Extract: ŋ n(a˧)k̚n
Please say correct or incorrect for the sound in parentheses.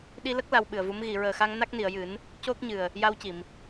incorrect